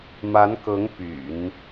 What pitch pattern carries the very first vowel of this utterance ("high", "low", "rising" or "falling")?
rising